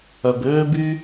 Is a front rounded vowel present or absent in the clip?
present